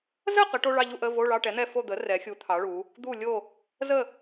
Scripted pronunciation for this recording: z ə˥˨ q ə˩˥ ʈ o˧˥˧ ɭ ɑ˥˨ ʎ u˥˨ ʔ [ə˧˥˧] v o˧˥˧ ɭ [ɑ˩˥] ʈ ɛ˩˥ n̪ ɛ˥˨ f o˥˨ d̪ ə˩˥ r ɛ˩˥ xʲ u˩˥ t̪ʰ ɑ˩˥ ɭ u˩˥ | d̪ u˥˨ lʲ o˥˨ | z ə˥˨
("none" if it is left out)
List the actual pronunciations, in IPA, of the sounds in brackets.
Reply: ə˧˥˧, ɑ˧˥˧

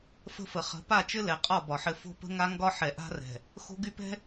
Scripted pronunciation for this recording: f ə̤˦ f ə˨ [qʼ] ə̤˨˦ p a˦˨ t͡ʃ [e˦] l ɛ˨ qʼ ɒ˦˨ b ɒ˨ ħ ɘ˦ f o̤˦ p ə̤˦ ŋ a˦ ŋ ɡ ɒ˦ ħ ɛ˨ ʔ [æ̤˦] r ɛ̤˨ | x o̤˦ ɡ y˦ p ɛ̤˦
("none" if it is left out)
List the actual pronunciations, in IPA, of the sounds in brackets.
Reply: χ, ɘ˦, a̤˦

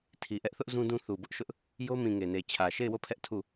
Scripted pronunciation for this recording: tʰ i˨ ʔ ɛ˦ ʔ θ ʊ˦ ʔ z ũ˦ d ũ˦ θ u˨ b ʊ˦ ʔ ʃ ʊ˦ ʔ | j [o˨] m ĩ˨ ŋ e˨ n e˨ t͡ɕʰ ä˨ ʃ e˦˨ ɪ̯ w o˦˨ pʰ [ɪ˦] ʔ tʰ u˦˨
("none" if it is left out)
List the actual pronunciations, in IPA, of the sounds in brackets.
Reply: o˦, ɛ˦

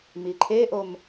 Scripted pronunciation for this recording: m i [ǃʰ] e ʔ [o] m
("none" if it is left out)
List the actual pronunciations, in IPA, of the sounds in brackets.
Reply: ǃʰ, o

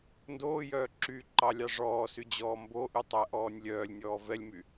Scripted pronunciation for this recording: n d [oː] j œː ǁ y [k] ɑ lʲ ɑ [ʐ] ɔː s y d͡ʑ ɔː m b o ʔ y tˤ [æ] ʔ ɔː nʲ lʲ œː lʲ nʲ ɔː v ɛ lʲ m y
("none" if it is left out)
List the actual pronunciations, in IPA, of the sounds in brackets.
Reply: oː, ǃ, ʐ, æ

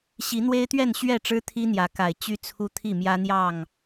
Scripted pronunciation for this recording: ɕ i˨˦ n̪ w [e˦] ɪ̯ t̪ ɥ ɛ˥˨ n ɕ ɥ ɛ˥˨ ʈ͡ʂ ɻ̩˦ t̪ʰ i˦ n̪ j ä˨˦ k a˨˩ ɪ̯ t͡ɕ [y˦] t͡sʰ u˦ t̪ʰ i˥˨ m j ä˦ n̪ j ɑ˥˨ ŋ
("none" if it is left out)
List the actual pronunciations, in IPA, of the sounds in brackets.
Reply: e˦, y˦

